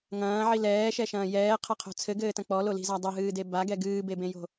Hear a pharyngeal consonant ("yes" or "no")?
yes